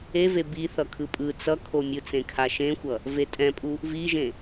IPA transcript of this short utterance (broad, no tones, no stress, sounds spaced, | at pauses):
e v e b i θ ʌ kʰ ɯ pʼ ɯ t͡s ʌ kʰ o mʲ ɯ t͡s ẽ kʰ a ʃ ẽ xʷ ʌ | v e tʼ ɛ̃ pʼ u | v i ʒ ẽ